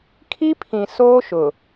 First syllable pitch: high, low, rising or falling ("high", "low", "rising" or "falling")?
high